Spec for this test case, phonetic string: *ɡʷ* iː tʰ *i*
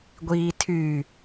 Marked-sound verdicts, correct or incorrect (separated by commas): correct, incorrect